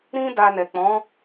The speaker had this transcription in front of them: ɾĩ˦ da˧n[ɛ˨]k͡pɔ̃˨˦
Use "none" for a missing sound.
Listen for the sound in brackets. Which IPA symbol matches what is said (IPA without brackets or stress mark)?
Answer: ɛ˨